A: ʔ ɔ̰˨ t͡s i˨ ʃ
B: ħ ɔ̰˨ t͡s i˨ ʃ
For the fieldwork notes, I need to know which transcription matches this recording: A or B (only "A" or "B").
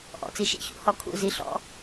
A